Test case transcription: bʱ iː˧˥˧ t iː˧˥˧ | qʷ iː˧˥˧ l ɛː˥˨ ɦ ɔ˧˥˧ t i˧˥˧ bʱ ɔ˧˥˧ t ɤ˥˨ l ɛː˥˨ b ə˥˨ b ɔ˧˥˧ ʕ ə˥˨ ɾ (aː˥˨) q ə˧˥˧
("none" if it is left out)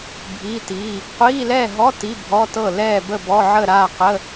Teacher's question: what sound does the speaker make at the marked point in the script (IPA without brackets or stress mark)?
aː˥˨